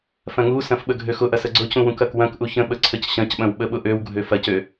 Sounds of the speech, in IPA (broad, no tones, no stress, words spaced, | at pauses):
fɐ̃ŋusɐ̃f ɓəɡʱøxʊʔɐs əɡ͡ǀʊcũ wũkɐkwɐ̃kʔu çə̃ɓə ǀʰəcɕɐ̃cɓɐ̃w ɓəɓʊʔøwɡʱø fɐcø